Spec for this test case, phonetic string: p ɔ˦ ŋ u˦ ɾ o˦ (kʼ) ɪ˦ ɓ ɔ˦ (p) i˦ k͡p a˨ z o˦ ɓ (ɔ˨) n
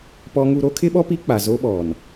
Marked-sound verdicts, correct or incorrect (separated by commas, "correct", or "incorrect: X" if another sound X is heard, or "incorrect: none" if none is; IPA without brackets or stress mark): incorrect: kʰ, correct, correct